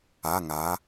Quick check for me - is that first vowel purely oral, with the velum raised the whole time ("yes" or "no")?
yes